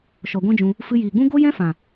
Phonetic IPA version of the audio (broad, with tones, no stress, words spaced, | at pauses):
ʃɔ˨ɡʷɛ̃˦d͡ʒũ˧ | fɨ˧jiː˨ɡ͡bũ˦ ɡo˦jɛ̃˦fã˨